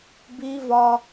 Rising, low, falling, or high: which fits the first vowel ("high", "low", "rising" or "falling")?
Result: high